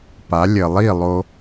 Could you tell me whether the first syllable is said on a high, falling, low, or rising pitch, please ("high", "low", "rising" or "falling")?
rising